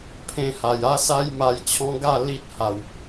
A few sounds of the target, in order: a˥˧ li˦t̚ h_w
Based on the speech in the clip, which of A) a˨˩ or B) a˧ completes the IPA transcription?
A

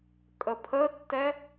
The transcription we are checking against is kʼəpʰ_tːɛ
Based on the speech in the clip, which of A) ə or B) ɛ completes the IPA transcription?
A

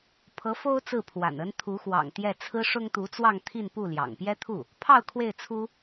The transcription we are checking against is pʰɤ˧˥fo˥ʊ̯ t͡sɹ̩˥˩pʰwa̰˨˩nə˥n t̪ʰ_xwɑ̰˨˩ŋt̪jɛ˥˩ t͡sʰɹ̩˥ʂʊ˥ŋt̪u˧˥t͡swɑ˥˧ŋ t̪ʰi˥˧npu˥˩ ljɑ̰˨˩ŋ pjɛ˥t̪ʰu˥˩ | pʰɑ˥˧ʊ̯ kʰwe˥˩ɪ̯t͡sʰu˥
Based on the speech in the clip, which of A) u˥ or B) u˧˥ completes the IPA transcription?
B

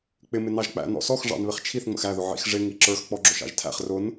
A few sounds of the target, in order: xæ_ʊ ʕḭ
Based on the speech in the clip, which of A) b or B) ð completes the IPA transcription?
B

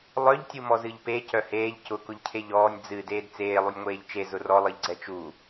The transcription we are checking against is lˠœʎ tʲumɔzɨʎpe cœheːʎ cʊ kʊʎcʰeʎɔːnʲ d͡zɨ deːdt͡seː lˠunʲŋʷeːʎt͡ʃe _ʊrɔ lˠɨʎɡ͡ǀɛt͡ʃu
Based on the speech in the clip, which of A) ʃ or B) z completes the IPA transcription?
B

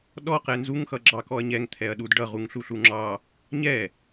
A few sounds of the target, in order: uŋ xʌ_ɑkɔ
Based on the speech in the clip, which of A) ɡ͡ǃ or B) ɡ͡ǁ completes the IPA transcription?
B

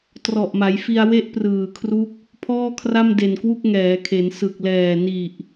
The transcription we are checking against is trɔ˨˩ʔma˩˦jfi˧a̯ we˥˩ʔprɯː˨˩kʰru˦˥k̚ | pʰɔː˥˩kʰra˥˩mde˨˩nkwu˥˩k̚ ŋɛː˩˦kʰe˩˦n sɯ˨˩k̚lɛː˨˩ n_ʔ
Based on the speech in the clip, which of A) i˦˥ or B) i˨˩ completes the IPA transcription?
B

